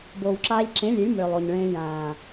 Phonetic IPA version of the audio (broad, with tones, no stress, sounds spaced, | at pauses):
b oː˨ w ǁ aː˧ ʎ ǁ ẽ˨˦ lʲ e˨˦ lʲ m ʏː˨ lˠ o˨ ɲ ɭ ẽː˧ j ãː˨